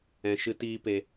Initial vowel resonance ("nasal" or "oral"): nasal